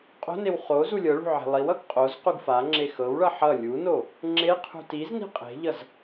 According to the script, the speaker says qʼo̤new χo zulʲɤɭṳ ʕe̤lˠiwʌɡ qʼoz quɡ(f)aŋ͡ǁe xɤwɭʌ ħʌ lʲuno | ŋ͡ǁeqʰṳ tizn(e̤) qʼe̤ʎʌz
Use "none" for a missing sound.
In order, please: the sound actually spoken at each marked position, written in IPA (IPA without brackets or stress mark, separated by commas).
f, i̤